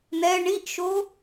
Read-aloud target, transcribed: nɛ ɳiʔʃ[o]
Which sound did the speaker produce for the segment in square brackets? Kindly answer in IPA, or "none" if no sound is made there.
o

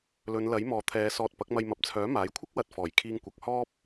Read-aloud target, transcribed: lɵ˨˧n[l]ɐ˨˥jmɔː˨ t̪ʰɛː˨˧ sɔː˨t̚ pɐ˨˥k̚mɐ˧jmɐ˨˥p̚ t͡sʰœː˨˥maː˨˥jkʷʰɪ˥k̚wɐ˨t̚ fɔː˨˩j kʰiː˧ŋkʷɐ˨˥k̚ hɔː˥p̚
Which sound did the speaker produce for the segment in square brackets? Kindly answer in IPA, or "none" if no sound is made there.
l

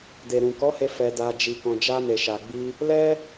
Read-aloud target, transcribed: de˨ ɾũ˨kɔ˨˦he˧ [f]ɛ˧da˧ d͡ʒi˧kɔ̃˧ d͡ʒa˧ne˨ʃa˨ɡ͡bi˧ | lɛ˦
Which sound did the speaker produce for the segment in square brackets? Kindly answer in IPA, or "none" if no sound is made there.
f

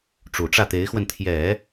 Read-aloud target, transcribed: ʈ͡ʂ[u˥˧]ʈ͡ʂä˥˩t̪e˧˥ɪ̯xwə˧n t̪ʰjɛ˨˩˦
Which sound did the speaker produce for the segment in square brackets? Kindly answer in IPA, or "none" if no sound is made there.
u˨˩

